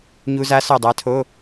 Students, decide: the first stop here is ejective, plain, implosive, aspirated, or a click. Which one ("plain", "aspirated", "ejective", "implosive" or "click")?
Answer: plain